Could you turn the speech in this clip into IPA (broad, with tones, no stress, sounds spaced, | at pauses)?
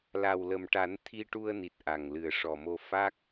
l a˨˩ w l ə˨˩ m ʈ a˨˩˦ n t̪ʰ i˧ ʈ u˧ ə̯ n i˨˩ t̚ ʔ a˨˩ ŋ l ɨ˨˩ ə̯ ʂ ɔ˨˩ m o˧ f a˦˥ k̚